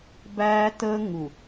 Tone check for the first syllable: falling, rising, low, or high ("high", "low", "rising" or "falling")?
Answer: high